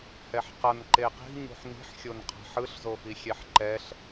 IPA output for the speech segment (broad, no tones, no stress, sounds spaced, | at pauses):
h ɛ ħ q ʌ n ǃ e q i̤ ɲ ṳ ħ n i̤ ħ xʲ o n qʰ a̤ ħ ɯ ɬ z o f i xʲ ɛ ħ ǃ ɛ ɬ